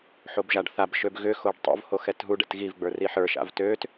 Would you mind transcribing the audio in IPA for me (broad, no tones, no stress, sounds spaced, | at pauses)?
ħ o b ʒ a ɖ θ a b ʃ ø b ɣ ʏ x o ɖ tˤ o̰ v h o x ɛ t ɦ u ɖ ɛ̰ t ɣ i v ɡ͡b ə˞ r i ħ ə˞ ʃ a̰ v t ø t